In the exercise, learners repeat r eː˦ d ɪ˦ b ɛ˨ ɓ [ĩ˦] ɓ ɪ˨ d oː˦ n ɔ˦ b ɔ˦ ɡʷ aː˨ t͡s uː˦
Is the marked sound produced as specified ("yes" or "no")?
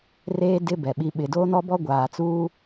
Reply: no